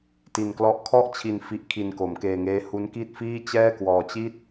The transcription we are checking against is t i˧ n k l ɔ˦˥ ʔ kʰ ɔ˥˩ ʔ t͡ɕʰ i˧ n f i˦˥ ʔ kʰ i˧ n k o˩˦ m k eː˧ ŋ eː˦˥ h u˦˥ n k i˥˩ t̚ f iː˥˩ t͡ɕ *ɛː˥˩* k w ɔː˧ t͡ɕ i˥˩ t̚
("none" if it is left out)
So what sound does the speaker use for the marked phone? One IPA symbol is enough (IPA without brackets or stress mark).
ɛː˥˩